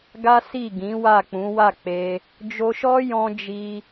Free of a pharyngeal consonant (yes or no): yes